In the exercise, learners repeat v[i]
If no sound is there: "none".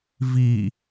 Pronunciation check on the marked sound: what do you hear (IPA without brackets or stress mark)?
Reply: i